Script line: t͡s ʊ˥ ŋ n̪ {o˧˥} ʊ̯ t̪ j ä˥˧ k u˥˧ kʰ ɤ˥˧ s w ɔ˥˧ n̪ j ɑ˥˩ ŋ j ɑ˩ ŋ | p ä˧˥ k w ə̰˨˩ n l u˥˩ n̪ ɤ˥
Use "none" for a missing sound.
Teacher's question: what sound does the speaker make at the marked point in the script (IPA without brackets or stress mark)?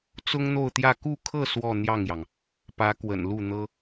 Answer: o˥˧